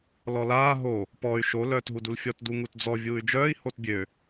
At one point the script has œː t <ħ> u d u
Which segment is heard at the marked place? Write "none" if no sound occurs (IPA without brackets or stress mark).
ɦ